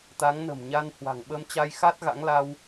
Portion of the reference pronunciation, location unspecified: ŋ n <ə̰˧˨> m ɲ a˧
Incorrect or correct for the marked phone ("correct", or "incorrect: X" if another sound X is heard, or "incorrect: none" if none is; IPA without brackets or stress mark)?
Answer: incorrect: ə̤˨˩